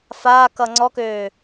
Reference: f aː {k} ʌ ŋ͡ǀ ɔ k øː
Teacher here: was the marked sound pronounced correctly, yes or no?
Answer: yes